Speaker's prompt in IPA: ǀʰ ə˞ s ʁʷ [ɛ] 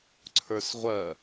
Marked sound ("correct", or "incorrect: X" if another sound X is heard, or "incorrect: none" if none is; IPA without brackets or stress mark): incorrect: ɜ